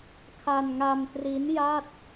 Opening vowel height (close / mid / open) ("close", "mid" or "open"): open